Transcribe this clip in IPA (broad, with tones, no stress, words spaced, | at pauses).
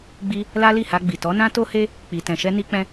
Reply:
ɡ͡bi˧ | la˦li˦˨ha˧ɡ͡bi˨ tɔ˨˦nã˦ to˦he˦ | k͡pi˨tɛ̃˨ʃɛ˧ ni˧k͡pɛ̃˧